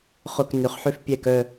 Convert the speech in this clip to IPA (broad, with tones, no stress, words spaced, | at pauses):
χʊ˧˩k nʏ˩˧χħʏ˧fpʲɛ˧˩k œ˧˩